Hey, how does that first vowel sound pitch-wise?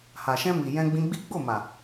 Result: low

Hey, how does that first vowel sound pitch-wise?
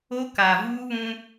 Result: high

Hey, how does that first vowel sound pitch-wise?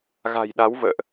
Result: low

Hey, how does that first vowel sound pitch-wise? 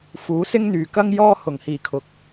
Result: rising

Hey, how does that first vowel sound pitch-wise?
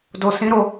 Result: low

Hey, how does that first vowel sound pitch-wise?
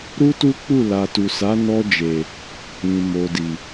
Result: high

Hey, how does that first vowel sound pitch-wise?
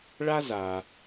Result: high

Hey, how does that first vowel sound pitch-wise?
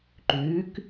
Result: rising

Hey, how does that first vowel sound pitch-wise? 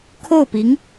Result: falling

